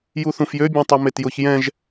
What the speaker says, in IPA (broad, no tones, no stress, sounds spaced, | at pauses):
j u θ ũ f j ø bʲ ɛ̃ tˤ u m e t j ʊ ç j ɛ̃ ʒ